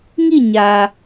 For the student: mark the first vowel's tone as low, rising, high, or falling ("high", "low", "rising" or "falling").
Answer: falling